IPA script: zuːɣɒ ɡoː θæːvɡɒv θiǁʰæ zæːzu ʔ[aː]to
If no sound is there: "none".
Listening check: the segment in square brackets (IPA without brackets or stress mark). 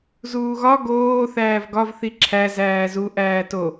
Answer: æː